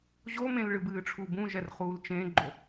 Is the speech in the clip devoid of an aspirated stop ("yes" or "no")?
no